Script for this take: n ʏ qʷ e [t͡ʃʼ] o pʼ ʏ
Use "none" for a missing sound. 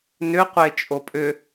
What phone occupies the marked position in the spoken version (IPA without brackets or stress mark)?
t͡ʃʼ